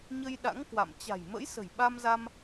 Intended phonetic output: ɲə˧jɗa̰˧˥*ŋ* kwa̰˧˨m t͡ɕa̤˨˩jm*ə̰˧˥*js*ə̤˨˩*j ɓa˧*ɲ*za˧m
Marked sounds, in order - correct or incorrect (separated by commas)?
correct, correct, correct, incorrect